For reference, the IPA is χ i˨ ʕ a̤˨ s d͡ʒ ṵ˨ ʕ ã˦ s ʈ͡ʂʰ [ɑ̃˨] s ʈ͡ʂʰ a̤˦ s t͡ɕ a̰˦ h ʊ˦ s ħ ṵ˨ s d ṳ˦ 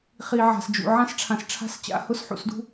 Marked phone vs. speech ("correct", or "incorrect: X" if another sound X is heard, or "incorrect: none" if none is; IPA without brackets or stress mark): incorrect: ã˨